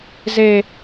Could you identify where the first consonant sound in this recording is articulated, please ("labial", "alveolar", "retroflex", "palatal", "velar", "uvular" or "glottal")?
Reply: alveolar